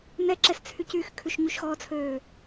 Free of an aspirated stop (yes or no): no